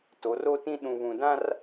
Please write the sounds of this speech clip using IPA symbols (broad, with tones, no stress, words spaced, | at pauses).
to˨˦ro˦tĩ˦ ɗũ˨βũ˨dã˦r